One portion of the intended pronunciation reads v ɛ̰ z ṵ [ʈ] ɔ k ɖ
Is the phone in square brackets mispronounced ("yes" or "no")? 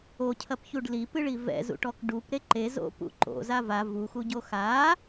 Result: no